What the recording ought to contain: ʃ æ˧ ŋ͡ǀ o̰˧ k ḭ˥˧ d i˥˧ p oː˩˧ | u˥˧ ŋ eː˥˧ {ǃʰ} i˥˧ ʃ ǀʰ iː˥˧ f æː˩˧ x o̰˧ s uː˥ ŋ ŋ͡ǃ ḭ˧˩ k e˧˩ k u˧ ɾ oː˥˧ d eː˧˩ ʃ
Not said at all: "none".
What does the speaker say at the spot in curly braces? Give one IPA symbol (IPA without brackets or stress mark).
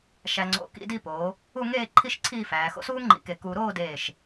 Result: ǃʰ